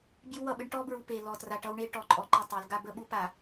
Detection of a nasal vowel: absent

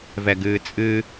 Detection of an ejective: present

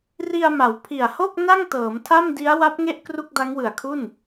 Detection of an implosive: absent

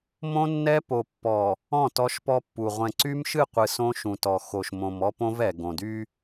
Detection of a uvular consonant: present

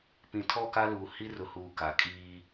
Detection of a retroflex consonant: absent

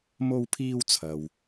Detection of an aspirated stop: present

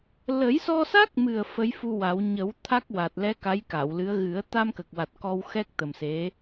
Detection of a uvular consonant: absent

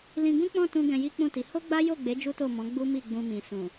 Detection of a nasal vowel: present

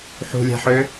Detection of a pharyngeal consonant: present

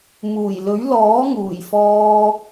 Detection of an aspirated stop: absent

